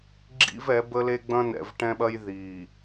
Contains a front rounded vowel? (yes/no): no